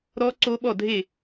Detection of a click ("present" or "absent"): present